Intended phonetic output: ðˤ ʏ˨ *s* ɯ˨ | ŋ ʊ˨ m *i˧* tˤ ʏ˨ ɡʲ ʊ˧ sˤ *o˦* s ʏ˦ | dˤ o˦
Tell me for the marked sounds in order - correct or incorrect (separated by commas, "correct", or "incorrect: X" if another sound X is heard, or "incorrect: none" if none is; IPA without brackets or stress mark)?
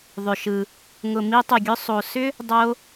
incorrect: ʃ, correct, incorrect: o˨